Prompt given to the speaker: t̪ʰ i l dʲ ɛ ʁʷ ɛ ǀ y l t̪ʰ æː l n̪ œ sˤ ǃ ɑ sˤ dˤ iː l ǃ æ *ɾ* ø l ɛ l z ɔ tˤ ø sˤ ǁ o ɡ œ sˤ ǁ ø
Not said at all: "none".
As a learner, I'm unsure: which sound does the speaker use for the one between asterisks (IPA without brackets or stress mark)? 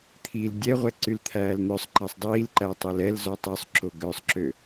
tˤ